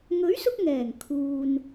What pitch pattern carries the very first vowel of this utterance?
rising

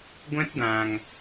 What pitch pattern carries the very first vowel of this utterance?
high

